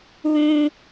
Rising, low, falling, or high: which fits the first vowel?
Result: high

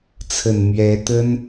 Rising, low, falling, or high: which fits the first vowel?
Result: low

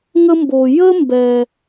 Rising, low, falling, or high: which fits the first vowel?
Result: high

